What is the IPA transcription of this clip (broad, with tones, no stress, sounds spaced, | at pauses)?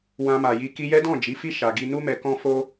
w ã˧ m a˨ j i˧ k i˧ j ɛ˦ d ɔ̃˦˨ d͡ʒ i˨˦ f i˦ ʃ a˧ ɡ i˦ n u˦ m ɛ˧ k ɔ̃˦ f o˦